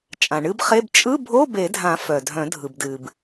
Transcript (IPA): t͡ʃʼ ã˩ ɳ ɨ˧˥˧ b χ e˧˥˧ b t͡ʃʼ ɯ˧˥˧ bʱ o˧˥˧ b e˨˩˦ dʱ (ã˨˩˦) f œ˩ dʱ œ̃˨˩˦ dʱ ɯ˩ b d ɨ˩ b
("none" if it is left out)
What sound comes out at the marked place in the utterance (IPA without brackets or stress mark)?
ã˨˩˦